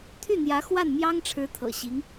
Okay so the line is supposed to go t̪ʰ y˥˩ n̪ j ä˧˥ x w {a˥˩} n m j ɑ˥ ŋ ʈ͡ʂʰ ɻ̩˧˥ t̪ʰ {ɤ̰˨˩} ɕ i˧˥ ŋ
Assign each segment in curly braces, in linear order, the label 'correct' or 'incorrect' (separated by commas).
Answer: correct, correct